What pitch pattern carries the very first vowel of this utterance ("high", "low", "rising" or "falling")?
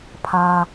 high